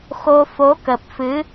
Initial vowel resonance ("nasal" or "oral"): oral